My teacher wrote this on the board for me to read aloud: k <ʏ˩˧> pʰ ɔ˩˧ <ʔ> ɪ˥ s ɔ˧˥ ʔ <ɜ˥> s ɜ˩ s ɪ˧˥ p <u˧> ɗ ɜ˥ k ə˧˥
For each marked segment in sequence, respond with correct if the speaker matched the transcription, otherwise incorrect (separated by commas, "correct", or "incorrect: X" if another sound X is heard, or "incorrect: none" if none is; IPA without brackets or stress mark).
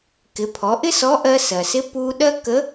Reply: incorrect: ɪ˩˧, correct, incorrect: ɜ˧, correct